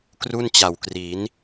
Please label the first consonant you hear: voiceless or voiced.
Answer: voiceless